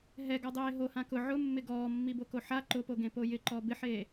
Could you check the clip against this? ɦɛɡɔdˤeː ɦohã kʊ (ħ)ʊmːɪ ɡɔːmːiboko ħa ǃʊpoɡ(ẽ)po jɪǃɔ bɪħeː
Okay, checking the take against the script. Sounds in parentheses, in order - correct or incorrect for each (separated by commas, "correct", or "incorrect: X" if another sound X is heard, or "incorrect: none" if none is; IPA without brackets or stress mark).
incorrect: ʕ, correct